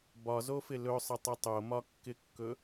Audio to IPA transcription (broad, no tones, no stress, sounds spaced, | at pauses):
b ɒ z o f ɪ l ɵ sˤ ə tˤ ə tˤ o m ɒ kː ɪ kː ɵ